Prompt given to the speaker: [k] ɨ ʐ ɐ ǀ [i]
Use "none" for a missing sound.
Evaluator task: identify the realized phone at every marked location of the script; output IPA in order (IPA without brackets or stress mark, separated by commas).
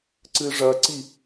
ǀ, i